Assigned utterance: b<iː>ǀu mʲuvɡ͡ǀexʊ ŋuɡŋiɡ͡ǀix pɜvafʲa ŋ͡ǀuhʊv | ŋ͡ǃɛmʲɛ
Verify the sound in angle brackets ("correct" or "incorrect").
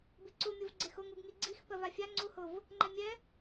incorrect